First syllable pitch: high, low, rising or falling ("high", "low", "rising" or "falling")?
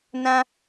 high